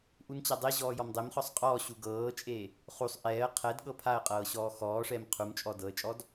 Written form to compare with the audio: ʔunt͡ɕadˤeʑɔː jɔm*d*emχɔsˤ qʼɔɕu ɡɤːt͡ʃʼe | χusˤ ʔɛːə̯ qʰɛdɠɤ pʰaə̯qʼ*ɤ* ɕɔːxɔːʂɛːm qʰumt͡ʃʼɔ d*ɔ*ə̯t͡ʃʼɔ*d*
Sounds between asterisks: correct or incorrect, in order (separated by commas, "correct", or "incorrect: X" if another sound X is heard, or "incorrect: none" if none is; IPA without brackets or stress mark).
incorrect: dˤ, incorrect: ɤː, incorrect: ɤ, correct